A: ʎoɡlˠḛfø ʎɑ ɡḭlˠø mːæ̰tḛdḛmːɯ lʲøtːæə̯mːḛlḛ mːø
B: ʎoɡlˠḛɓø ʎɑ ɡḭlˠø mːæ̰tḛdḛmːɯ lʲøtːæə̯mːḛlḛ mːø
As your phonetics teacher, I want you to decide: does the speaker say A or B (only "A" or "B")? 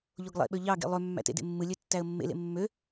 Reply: B